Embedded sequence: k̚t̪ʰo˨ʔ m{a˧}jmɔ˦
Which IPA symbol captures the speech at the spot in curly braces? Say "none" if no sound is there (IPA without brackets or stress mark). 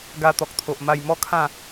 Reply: a˧